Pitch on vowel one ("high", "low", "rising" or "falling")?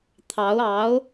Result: rising